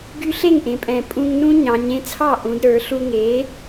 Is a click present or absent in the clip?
absent